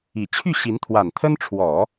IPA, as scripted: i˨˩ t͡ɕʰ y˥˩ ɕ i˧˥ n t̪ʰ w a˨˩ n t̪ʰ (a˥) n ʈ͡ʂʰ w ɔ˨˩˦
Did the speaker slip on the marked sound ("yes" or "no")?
yes